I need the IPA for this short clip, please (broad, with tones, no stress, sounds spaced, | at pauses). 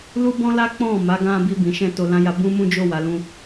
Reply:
l u˦ b ɔ̃˦ l a˦ k͡p ɔ̃˦˨ m a˨˦ ɡ ã˧ b i˧ b ĩ˨ ʃ ɛ̃˧ t o˧ l ã˦ j a˧ b ũ˦ m ũ˦ d͡ʒ o˦˨ w a˨˦ l ũ˦